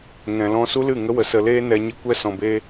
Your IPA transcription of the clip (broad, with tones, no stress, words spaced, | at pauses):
ŋɛ̃˨lɔ̃˧ su˦lɨ˦˨ŋə˦wə˨ sə˧leː˦ nɛ˧ ɲi˧ kʷɛ˧ sɔ̃˨beː˧